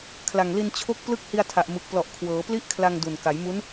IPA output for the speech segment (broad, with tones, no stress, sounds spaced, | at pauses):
kʰ l a˨˩ ŋ l i˧ n t͡ɕʰ o˦˥ k̚ p l ɯ˥˩ k̚ h i˧ a̯ tʰ a˨˩ ʔ m ɯ˨˩ k̚ p l ɔ˨˩ ʔ kʰ w ɤː˩˦ p l i˥˩ ʔ kʰ l a˧ ŋ d u˨˩ n k a˩˦ j m u˦˥ n